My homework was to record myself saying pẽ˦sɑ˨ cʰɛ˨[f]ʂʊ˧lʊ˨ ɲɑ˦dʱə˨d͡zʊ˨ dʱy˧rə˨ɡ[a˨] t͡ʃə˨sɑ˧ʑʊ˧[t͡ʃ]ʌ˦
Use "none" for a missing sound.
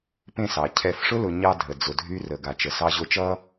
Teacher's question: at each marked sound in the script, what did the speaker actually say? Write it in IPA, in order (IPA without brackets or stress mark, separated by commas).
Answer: f, a˨, t͡ʃ